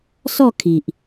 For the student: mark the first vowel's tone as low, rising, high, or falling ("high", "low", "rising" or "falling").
falling